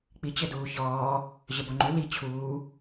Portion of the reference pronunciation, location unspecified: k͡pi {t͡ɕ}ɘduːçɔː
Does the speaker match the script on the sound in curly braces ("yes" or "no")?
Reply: yes